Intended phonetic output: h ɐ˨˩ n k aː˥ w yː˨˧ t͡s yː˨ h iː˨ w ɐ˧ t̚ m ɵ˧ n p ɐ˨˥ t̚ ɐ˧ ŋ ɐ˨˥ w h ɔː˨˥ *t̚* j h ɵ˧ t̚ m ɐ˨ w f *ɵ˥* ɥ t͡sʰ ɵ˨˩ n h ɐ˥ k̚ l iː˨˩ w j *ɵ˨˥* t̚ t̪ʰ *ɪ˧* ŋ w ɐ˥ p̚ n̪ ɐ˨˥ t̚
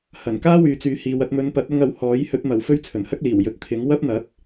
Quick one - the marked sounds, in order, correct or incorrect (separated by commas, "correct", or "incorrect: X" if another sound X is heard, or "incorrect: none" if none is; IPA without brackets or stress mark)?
incorrect: none, correct, correct, incorrect: ɪ˨˥